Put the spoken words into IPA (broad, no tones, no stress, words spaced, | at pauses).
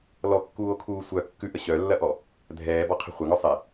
lɔkːuːo̯kʰuː sʷœ kːʉʔə ɕœlːɐʔɔ | dʱɛːbɔqʰə̤ χʷɐŋœ sˤe